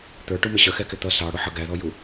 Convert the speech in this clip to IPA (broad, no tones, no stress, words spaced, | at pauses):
t̪ə˞ʈumɪ ɕəxɛkɪ t̪ʌ sɑ ɽʊħʌ ɡæðɔju